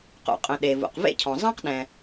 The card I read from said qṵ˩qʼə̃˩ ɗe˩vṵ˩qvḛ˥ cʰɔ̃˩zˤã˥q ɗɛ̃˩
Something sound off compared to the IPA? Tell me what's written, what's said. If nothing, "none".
none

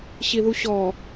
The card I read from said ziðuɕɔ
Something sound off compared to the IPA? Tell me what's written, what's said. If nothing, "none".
z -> ɕ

